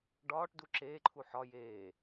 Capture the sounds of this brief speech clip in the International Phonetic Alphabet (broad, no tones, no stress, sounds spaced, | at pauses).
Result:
ɖ ɒː ʈ d u ǁ eː ǃʰ u ħ ɒ j eː